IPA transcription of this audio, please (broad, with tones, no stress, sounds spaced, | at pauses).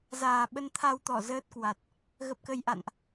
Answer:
z aː˨˩ ɓ ə˧ n t̪ʰ a˧ w t̪ ɔ˧˩ z əː˦˥ t̚ k w a˨˩ t̚ | ɣ ə˨˩ p̚ k ə˨˩ j ʔ a̰˧˨ n ʔ